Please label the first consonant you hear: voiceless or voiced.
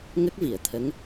voiced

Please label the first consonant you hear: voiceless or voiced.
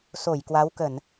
voiceless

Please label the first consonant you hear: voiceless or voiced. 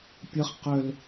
voiceless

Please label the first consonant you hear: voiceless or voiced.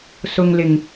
voiceless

